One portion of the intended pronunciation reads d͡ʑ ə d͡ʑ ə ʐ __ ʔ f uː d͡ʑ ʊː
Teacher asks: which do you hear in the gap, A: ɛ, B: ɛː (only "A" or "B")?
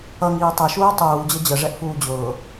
A